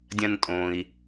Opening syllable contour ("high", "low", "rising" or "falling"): low